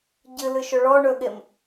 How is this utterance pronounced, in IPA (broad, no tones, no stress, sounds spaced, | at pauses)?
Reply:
ɟ ɨ l ɨ ʃ ɵ ɭ ɔ ɳ ɵ ɠ e m